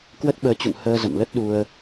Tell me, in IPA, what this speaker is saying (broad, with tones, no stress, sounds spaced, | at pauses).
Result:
k w ə˦˥ t̚ ɓ əː˨˦ t͡ɕ ṵ˧˨ ŋ h əː˧ z ə̰˧˨ m l ə˦˥ t̚ ɗ u˧ ə̯